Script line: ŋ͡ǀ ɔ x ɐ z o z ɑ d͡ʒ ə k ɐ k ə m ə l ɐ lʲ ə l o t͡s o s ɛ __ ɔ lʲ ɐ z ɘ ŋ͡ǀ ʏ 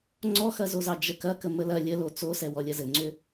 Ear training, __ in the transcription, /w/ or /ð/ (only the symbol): w